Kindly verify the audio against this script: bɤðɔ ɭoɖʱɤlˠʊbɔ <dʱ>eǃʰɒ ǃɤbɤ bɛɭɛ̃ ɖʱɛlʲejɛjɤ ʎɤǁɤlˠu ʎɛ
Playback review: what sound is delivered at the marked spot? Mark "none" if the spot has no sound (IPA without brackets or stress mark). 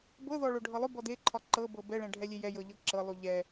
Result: d